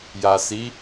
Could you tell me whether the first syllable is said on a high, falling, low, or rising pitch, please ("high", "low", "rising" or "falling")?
low